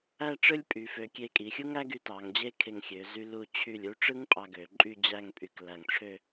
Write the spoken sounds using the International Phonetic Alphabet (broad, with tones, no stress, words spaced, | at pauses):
æ˥˧ ʈ͡ʂɯ˥lʲpʼy˩˧fø˩˧ kʲe˧˩kʼi˩˧ xʲu˥ŋæ˥ɡy˧ tɑ˩˧ŋ d͡ʑe˥˧kʰe˧˩ŋxʲø˩˧ zy˧ lu˧˩t͡ɕʰy˧˩lʲ u˥˧ʈ͡ʂɯ˥ŋ pʼɑ˧ɡø˩˧ǃʼy˥˧ d͡ʑæ˥˧ŋpʼy˧k læ˧˩ŋʈ͡ʂʰø˥˧